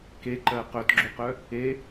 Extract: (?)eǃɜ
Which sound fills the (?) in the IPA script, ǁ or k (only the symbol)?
k